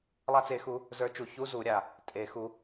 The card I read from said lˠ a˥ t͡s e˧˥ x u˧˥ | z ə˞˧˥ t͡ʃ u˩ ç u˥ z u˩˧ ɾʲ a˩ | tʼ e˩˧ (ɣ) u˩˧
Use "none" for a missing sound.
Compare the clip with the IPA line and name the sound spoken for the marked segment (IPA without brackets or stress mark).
x